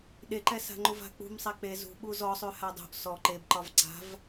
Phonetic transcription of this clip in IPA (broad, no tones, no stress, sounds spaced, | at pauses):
ɗ e ǃ ɛ s a̤ ŋ͡ǃ u v a̤ k͡p ṳ m sˤ ɛ k͡p e z ṳ ɓ u z ɔ sˤ ʉ h a dˤ ṳ ʔ s ɔ ǃ e b ǃ ɒ v ǀ a̤ v